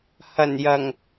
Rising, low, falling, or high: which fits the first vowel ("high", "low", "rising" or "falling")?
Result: low